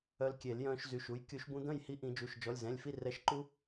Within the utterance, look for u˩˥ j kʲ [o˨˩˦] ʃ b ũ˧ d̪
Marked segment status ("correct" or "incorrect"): incorrect